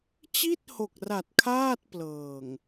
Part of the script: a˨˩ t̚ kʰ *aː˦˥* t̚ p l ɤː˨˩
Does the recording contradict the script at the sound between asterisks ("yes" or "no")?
yes